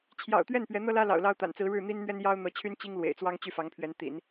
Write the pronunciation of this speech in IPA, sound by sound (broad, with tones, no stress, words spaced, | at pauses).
t͡ɕʰjɑ̰˨˩ʊ̯t̪ɥɛ˥˩n pɥɛ˧˥n̪ɤ˥lä˥lɑ̰˨˩ʊ̯ lɑ˥ʊ̯t̪a̰˨˩n t͡sɹ̩˧˥ɻɻ̩˥˩ n̪i˥nn̪ɥɛ˥n jɑ˥ʊ̯n̪ɤ˧˥t͡ɕʰy˥n t͡ɕi˥ŋlwḛ˨˩ɪ̯t͡swɑ˥ŋ t͡ɕy˥˩fɑ˧˥ŋpʰɥɛ˧˥n t̪ḭ˨˩˦n